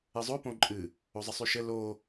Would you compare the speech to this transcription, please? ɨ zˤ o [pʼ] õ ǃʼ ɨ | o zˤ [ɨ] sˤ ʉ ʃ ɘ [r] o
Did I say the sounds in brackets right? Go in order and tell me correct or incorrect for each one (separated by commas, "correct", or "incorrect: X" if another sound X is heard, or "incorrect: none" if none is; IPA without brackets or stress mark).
incorrect: p, incorrect: ə, incorrect: l